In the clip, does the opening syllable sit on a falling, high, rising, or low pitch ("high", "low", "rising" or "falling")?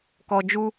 low